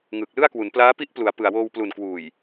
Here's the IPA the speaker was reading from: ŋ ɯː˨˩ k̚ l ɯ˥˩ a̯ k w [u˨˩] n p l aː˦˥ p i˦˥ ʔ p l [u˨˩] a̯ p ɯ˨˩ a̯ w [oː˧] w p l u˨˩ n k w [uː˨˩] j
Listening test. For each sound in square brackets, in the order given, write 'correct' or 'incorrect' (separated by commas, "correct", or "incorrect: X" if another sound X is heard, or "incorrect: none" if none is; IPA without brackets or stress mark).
incorrect: u˩˦, incorrect: u˩˦, correct, correct